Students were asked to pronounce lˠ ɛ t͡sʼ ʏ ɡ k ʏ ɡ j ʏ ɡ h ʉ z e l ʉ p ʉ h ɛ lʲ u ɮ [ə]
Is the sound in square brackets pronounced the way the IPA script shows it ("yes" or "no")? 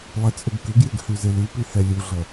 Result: no